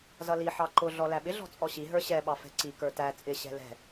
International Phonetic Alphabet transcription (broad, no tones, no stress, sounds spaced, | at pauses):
z ʌ l i ħ ɑ ǃ ʊ ɮ ɔ l æ ɓ ɪ ɮ ɔ̤ t͡sʼ ɔ ɕ i ɦ ə˞ ɕ ɛ ɓ ɑ f ɛ̤ ǀ i k ə˞ t æ t͡sʼ ɪ ɕ ɛ̤ l ɛ̤